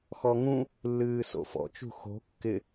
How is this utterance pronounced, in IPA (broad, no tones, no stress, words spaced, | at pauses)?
xɔŋũ | lːɨːso̰fɔ̰ t͡ʃṳxo̤ kːɪ